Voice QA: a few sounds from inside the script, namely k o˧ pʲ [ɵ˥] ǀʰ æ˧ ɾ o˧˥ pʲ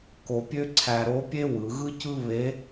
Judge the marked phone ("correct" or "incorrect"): incorrect